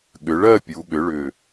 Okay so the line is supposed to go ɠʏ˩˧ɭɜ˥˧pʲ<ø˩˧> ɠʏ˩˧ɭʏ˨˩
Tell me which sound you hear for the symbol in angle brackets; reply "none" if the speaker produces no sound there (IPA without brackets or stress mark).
u˩˧